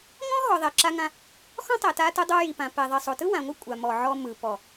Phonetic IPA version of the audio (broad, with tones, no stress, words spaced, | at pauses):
ŋɔ̃˦ɦɔ˨ ðˤɛ˨ ǁa˧ŋã˧ | xɔ̃˦tˤɛ˨ ta˧tɯ˧dˤo˧ ji˨pã˨ pɛ˨ðˤi˨sˤo˨tɯ˦ wã˨ŋʷɯ˦ kʷʼa˨ mɔ˨ ʕɔ˧mɯ˨pɔ˨